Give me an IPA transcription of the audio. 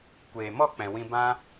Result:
kʷeː˨mɔ˦˨k͡pɛ̃˨ wĩ˦ bã˦

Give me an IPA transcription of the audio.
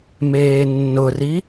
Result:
meːnːʊri

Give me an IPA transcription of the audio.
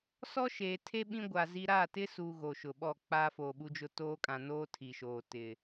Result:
sɔ˦ʃeː˨tʰe˦ ɓĩ˦ɡʷa˨zi˦ ɾa˦˨tɪ˦su˨ ɣo˨ʃʊ˨ɓɔ˦˨ k͡pa˦foː˨ɓu˦d͡ʒʊ˦ toː˦kʼã˨ noː˦tʰi˨ʃoː˨ tɪ˨

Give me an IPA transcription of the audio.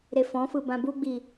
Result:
ɾefɔ̃fɯ bãbuɡ͡bi

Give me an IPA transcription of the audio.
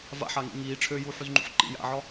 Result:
va̰ħaŋḭ ŋiː ʈ͡ʂʰøjuːħyzŋ͡ǃṵħ ǃḭ ja̰ʕɒ

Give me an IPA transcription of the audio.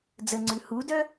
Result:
d͡zəŋ͡ǀʉ hudœ

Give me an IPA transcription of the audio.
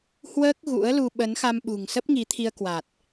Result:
hwəː˦˥k̚ ɣṵ˧˥ə̯lu˧ ɓə˨˦nxa˧mɓṳ˨˩ŋ sə˦˥p̚ŋi˨˦t̪ʰi˧ə̯ kwa˨˩t̚

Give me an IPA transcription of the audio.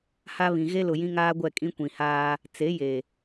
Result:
ha˦βĩ˨ ɣe˦lʊ˨ jĩ˦ŋaː˦ɡʷɛ˦˨ kʼĩ˦kʷĩ˨haː˦ | t͡se˨˦je˨

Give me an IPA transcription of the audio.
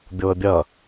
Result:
bʲoə̯bʲɐ

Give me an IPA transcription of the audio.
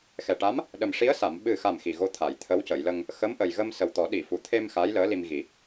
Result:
xɛ˨˩ʈa˧˥m | ɗə˨˩mʂi˧˥ə̯sa˨˩˨m ɓɨ˨˩xa˨˩m xi˨˩ɣo˧˥ t̪ʰa˨˩˨j t̪ʰə˧˥wcə˨˩˨jlə˧ŋ | xə˧˥mʔə˨˩jɣə˧m sə˨˩wt̪ɔ˨˩˦ ɗi˨˩˨fu˨˩˨t̪ʰe˧m xa˧˥jləː˧˥li˧m ɣi˨˩˦

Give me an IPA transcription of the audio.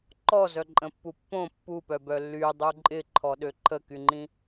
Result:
ǃɔzœǃʼə̃pːu pːõ pːupœbœ lːydˤu ǃʼɪǃʰɔɗø ǃʰəkyŋ͡ǃĩ

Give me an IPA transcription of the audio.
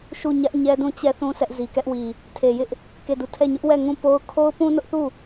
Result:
ʃu˦˨ ɲä˦ʔɲɛ˦dũ˦˨ t͡ɕɛ˦θũ˦ sɛ˦ʔ zi˨kɛ˦ʔwi˨ | tʰe˨jɪ˦ʔ | ke˦˨du˦˨ tʰɛ˦˨ɲʊ˦ʔwɛ˦˨ ŋũ˦˨po˦ʊ̯ kʰo˦ʊ̯pũ˦nʊ˦ʔθu˦˨

